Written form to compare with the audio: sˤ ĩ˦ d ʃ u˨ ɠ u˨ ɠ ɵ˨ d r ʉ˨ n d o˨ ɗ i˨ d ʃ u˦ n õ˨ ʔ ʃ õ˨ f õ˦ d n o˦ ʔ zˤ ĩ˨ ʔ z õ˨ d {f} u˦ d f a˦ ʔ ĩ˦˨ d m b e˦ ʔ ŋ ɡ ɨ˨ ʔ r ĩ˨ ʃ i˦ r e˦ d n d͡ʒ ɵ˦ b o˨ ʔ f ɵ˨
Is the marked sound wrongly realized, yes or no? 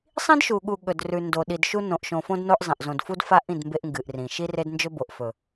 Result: no